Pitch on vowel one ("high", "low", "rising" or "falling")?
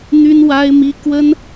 high